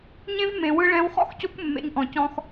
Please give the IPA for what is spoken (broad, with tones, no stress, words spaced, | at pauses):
ɲẽ˦vmẽ˨ wɯ˧ɭɛ̃˧wχɔ̰˦xco˦kʷ mːḛ˧ɲʔɔ̃˨cɔ̃˧x